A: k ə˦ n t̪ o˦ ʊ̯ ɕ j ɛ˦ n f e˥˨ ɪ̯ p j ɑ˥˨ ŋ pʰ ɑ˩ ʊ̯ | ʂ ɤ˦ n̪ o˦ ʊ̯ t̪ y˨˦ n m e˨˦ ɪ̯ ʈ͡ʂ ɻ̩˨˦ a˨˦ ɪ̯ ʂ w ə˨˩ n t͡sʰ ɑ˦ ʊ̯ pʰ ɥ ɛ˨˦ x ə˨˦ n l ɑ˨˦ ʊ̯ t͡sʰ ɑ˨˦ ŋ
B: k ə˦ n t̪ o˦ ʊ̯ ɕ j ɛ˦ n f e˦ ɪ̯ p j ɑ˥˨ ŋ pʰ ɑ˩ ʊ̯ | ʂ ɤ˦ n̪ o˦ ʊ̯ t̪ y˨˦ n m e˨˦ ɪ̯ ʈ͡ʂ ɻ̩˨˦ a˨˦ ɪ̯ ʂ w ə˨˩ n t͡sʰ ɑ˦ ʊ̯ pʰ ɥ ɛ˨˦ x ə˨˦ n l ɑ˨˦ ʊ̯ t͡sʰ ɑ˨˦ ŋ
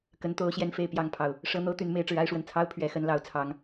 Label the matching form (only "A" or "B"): A